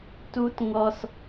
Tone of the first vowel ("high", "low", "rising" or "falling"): high